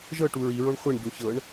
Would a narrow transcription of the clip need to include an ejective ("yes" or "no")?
no